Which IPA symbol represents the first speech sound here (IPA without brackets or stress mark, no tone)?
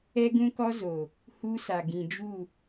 ɛ